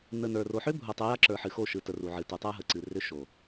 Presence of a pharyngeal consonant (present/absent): present